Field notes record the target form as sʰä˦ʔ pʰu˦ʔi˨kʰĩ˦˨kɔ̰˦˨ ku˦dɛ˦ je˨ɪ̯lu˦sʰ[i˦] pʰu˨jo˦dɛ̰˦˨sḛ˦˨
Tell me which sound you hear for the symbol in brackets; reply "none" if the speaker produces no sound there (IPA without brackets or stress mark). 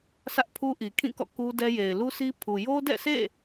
i˦